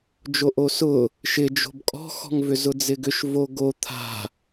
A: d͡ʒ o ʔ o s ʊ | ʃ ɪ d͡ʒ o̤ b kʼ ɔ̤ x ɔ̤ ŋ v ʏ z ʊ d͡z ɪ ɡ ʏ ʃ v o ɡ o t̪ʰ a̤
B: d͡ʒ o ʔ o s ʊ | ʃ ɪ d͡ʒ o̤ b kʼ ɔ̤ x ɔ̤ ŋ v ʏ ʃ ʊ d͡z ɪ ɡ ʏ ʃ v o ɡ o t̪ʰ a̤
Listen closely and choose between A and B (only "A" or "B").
A